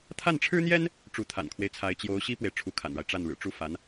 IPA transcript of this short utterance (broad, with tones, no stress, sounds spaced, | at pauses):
t̪ʰ a˥˩ n ʈ͡ʂʰ ɻ̩˥ n̪ j ɛ˥ n | ʈ͡ʂ u˧˥ t̪ʰ a̰˨˩ n kʰ w e˦ ɪ̯ t͡sʰ a˧˥ ɪ̯ t͡ɕ j o˧˥ ʊ̯ ɕ i˥ p w e˨ ɪ̯ ʈ͡ʂʰ u˧˥ kʰ a̰˨˩ n ɻ a˦ ɪ̯ ʈ͡ʂ a˥˩ n ɻ ɻ̩˨˩ ʈ͡ʂ u˥ f a˧˥ n